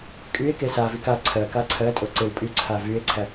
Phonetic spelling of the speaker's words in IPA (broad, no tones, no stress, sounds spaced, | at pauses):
kʼ y e̯ k e s a v i k a ǀʰ ɜ k a ǀʰ ɜ tʼ o ǀ e w pʼ y ǀʰ a v y e̯ ǀʰ æ